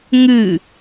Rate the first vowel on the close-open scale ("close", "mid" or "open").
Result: close